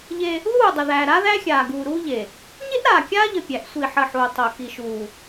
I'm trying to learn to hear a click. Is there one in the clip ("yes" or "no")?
no